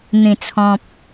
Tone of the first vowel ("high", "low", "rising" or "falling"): low